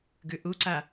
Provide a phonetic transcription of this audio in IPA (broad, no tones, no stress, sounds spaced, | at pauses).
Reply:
ɡ ʉ ʔ u ǀ a